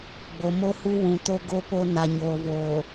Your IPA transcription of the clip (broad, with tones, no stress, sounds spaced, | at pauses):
ɡ͡b o˨ m o˦ h u˦ w ũ˨ t o˦ ɡ o˦ p o˦ n a˨ ɲ oː˨ v oː˨